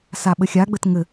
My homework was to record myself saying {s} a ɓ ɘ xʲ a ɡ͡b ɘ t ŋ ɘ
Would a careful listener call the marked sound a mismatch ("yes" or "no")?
no